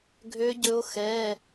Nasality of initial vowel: oral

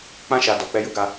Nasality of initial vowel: nasal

